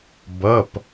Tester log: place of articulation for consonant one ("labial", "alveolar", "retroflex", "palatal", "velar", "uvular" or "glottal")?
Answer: labial